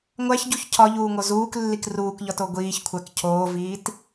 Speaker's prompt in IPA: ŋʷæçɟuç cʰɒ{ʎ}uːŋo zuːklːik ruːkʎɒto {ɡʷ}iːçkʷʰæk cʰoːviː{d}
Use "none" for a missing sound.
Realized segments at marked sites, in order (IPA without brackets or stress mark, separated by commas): ʎ, ɡʷ, t